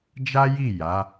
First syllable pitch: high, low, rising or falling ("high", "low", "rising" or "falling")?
high